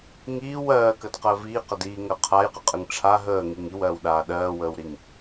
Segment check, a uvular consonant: present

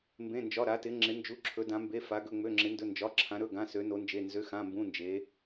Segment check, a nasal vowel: present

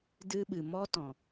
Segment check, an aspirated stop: absent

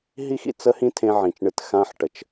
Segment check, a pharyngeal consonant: present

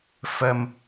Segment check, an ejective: absent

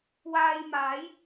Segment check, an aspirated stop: absent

